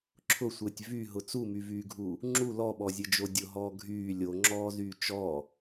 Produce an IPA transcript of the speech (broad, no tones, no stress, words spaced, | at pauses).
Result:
ǁʰʊsʷɘːtʲ vyɦʊ t͡sumyvyːɡʱuː | ŋ͡ǁu lɔɓɔzʲɘd͡ʒo dʲʊɦɔː ɡʱyː lʲoŋ͡ǁɔːzyː t͡ʃɔː